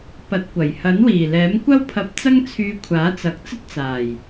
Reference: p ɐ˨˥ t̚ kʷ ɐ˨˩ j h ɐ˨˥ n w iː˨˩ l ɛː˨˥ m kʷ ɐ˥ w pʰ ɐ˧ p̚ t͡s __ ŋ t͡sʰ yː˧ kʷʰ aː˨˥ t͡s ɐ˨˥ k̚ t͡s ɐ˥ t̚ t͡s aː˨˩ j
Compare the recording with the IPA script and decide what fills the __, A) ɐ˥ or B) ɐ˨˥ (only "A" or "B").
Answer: A